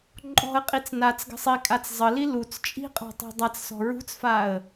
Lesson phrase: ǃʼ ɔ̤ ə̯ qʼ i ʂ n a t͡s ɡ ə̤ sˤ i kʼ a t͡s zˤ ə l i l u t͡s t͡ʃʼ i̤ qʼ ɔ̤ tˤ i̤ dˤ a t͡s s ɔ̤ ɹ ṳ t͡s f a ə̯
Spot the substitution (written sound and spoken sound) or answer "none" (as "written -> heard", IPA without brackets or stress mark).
ʂ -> t͡s